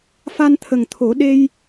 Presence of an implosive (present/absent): present